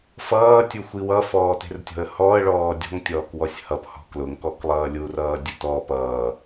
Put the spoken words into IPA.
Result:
f ʌː tʲ u xʷ i w ʌ f ɔː t e̤ r tʲ ɔ̤ ə̯ h ɔ ə̯ ɭ ɔː dʲ ɔ̤ ŋ tʲ ɔː k w ɔ sʲ h ʌ p h ɔ̤ k l ʊ ŋ k ɔ k lˠ ʌː lʲ u r ʌː dʲ ʊ t ɔ p ʌː

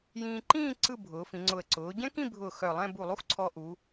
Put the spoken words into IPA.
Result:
j ĩː˧ ǃ ĩː˥˧ ǀ ɯ˥˧ bʱ ʊː˩˧ f ĩ˩˧ ŋ͡ǀ ʊ˧˩ ə̯ ǀ ʊː˩˧ ɟ ɛ̃˥ k ĩ˥˧ bʱ ʊː˧˩ x œ˧˩ lˠ ɛ̃˥˧ b u˧˩ lˠ u˥ x ǀʰ ɔ˧ ʔ u˩˧

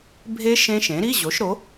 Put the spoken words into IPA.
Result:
bʱ e˦˥ ʃ ẽ˦˥ ʃ ẽ˩˥ ɾ i˧˥˧ ʑ o˩˥ ʃ ɾ o˩˥

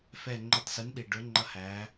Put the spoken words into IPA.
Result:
f ɛ˧˩ ŋ͡ǃ ʊ˧˩ tˤ s i˩˥ n ɗ i˩ ɖ ʊ˩˥ ŋ͡ǃ ʌ˦ h æ˩˥

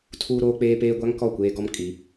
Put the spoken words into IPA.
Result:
tʰ uː˦ ɾ oː˦ k͡p eː˦ p eː˦ ɡʷ a˦ ŋ k ɔ˦˨ kʷ eː˦ ɡ ɔ˦ m kʼ i˨˦

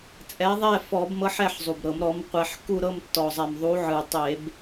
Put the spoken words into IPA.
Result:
t͡sʼ ɛ˨˥ ðˤ ɛ˥˨ f ɔ˧˩˧ b m ɤ˨˥ ħ ɛ˥˨ ħ zˤ u˨˩ b ɾ ɤ˧˩˧ m ɾ ɔ˨˥ m qʷ ɛ˧˩˧ ħ k u˥˨ ɾ ɤ˥˨ m tː ɔ˨˩ zˤ ɛ˨˩ m ðˤ u˨˥ ʕ ɯ˨˩ tˤ e˧˩˧ b

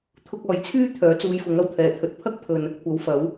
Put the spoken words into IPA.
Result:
t̪ʰ ʊ˧ k̚ ɔː˨ j t͡sʰ yː˥ t̪ʰ œː˨˥ t͡s uː˧ j f ʊ˨˥ ŋ ɐ˨˩ w t̪ʰ ɛː˨˩ t̪ʰ ɵ˨ t̚ pʰ ɐ˥ k̚ pʰ ɵ˨ n | kʷ ɐ˨˥ w f ɐ˨˥ w

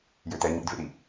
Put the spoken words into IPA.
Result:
j ø t̪ ɛ ɲ ḭ d v ḛ ɾ i

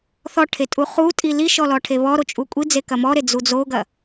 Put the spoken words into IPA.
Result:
θ ɔ ʈʰ e tʼ u χ u tʼ i l i ʃ ɔ l ɔ ʈʰ e β ɔ ɾ o t͡ʃʼ u kʷʼ i d͡z e k ɐ m ɔ ɾ e d͡z u d͡z o ɡ ɐ

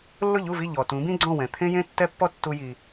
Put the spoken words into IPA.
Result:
lː ʊ˥˩ ʎ u˥˩ v i˥˩ ʎ ɔ˩ t ũ˩˥ b ĩ˥ ɡ͡ǀ ɔ̃˥˩ w ɛ̃˩ t̪ʰ ẽ˥ j ẽ˥ tː ɛ˥ pː ɔ˥ tː u˧ j i˩

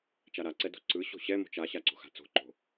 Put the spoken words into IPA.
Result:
t͡ʃ a ɾ a ǀ ɛ d o̤ ǀ ɯ ɕ o̤ ɕ ɛ m o̤ t͡ʃ a ɕ a ǀ o̤ x a̤ t͡s o̤ ǃ o̤

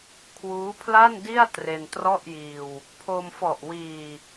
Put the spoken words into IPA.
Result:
kʰ w uː˦˥ pʰ l a˥˩ n d i˥˩ a̯ t r e˧ n t r ɔ˥˩ ʔ j iː˧ w | pʰ o˧ m f ɔ˨˩ ʔ w iː˨˩

